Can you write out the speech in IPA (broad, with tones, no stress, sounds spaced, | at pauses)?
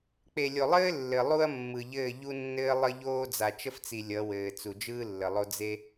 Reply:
k͡p e˨ lʲ o˨ lˠ ɘː˦ lː ɘ˨ lˠ u˦ ɐ̯ mː ɯ˨ ʎ ɘː˦˨ ʎ u˦ nː ɘː˦ lˠ ə˦ ʎ oː˦ d͡z a˨ t͡ʃ ə˦ f t͡s i˨ lʲ ʌ˨˦ w ɘː˨ t͡s u˨ d͡ʒ ɯː˦ lː ə˨ lˠ o˦ d͡z e˦